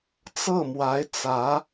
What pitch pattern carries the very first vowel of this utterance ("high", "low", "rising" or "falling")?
falling